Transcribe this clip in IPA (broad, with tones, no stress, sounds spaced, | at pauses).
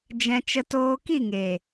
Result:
d͡ʒ ɛ̃˧ t͡ʃ ə˧ t oː˧ k i˦˨ ŋ eː˨